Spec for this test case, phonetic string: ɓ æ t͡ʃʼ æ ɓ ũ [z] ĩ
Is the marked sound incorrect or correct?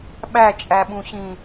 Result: incorrect